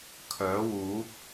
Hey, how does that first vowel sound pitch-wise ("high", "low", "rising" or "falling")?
rising